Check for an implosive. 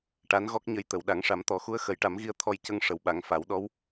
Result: present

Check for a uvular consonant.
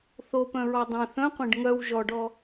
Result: present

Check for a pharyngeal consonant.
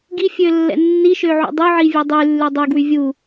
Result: present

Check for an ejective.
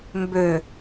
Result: absent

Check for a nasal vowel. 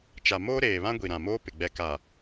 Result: present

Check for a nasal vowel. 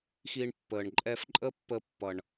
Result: absent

